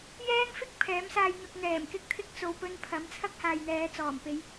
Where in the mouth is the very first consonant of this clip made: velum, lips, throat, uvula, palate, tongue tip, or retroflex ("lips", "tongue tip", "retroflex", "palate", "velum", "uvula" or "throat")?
palate